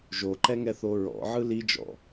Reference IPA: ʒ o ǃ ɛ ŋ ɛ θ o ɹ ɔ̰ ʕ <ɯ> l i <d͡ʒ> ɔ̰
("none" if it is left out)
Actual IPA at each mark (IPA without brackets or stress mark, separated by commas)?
ɯ, d͡ʒ